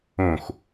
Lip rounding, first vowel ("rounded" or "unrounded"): rounded